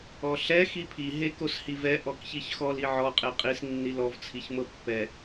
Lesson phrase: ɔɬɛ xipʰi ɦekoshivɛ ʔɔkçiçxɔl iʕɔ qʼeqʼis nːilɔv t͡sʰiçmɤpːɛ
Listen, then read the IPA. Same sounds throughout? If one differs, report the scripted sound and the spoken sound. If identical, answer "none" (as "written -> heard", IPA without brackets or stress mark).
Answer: none